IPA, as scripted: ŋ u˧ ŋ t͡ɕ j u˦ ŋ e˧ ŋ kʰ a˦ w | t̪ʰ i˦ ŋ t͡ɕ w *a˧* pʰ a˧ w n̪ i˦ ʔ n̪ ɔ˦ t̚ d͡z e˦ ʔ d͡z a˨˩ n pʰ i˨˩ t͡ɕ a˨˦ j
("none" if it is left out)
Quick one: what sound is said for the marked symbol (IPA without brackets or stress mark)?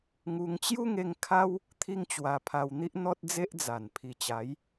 a˧